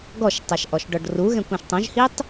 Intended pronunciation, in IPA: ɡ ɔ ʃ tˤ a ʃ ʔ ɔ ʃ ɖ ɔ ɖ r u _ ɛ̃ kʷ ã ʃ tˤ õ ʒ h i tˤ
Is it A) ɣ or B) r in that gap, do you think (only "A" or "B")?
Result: A